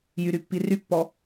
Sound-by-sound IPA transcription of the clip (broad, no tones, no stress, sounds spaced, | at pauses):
j y ɾ y pː i r y pː ɔ